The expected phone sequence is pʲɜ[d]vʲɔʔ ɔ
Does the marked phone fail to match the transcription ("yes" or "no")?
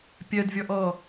no